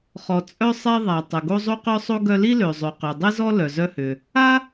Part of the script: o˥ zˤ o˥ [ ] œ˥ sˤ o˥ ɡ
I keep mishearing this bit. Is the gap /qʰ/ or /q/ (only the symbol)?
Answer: q